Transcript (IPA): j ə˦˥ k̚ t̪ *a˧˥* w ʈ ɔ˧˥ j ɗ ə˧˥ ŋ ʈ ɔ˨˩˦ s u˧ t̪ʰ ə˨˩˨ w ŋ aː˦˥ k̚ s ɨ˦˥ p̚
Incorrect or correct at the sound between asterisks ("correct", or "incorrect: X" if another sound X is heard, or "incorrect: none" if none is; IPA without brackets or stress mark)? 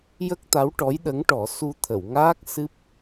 correct